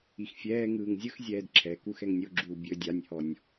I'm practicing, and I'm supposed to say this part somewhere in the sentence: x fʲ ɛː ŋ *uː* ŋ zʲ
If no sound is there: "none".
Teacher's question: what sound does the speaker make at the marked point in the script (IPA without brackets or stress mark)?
ɯː